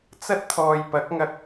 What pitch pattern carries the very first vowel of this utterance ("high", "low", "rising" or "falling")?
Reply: high